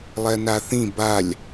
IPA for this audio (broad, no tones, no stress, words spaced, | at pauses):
lˠɛnaθĩ balʲ